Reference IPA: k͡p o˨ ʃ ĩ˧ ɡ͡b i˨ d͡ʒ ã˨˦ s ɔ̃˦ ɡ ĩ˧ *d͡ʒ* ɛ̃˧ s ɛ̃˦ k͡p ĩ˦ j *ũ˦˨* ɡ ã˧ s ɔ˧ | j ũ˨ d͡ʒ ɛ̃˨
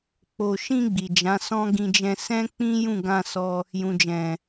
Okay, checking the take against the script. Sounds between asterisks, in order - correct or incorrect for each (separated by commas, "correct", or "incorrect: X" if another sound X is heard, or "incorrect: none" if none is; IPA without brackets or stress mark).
correct, correct